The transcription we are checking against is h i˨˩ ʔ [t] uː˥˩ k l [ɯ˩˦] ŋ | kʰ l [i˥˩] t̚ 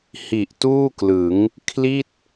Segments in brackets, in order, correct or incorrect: correct, correct, correct

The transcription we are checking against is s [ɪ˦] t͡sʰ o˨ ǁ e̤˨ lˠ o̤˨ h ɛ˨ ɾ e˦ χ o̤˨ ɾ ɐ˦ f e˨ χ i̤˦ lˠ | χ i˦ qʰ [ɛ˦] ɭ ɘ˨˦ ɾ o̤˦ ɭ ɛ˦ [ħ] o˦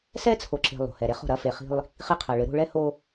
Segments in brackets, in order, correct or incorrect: incorrect, incorrect, incorrect

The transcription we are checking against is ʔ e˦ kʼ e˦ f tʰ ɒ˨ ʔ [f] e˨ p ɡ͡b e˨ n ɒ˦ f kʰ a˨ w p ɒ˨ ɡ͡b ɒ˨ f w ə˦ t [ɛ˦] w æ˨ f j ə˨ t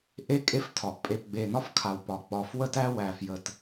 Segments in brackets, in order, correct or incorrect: incorrect, incorrect

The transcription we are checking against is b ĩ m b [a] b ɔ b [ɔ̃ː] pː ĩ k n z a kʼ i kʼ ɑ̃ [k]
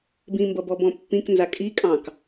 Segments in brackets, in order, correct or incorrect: incorrect, incorrect, correct

